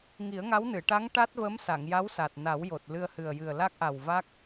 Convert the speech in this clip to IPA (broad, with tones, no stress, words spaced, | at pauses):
ŋi˨˩˦ə̯ŋa˧˥wnɨ˨˩˨ ʈa˧˥ŋ ʈa˦˥t̚və˧˥m sa˨˩˨ŋja˧˥wsa˨˩t̚ na˨˩˦wjo˨˩t̚ lɨ˧ə̯hɨ˨˩ə̯jɨ˨˩ə̯ la˦˥k̚ʔa˨˩wva˦˥k̚